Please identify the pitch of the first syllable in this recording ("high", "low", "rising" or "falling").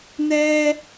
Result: high